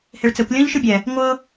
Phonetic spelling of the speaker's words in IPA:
h e ɭ t͡s ɛ kʷ lʲ ɔ̃ ʎ ʃ ɯ bʲ ɛ | ŋʷ ɤ

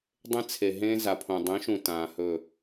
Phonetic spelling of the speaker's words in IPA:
dˤ ẽ˦ t͡sʰ e˨ ɦ ẽː˦ z a˨ pʰ õ˨ dˤ ẽ˨˦ ʃ ũ˨ t ãː˨ h ɵ˦˨

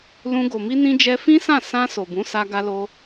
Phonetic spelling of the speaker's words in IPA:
l ũ˧ ɡ o˨ m i˧ n ĩ˧ d͡ʒ ɛ˧ f ĩ˦ s ã˦˨ s ã˧ s o˨ b ũ˨˦ s a˧ ɡ a˧ l o˧

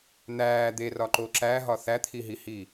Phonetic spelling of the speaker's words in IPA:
n̪ æː d̪ e r ɒ ǃ o ǁ æ ɦ ɒ θ æ t̪ʰ i ɦ i h iː

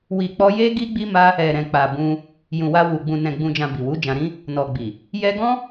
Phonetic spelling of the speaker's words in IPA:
w i˨ k͡p ɔ˧ j e˦ ɡ i˦ ɡ͡b i˦ m a˦ | ɛ˨ ɾ ɛ̃˨ k͡p a˨ b ũ˧ | j ũ˨ w a˧ w u˨ ɡ͡b ũ˨ n ɛ̃˨ ɡ͡b ũ˨ d͡ʒ ã˨ b i˨ w u˨˦ d͡ʒ ã˧ ɾ ĩ˦ | n ɔ˨ ɡ͡b i˨ | j ɛ˧ ɡ ɔ̃˦

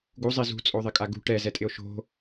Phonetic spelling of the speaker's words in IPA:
ɡ u zˤ i z ṳ t͡sʼ o ðˤ ɪ kʼ a ɡ ṳ ʈ ɛ z ɛ tʼ ɪ o̯ ʃ o̤

